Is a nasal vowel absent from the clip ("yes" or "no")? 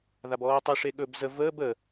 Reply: yes